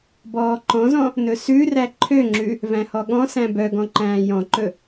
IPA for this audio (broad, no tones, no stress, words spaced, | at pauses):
bɔːǃɔ̃zɔ̃ | nɵsʉræ ǃʰøŋ͡ǁʉ | væ̃hɔɠɔ̃sæ̃ bœɡɔ̃ ǃæ̃ːjɔ̃ǃɵ